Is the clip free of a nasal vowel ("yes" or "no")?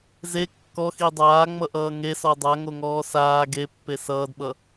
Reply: yes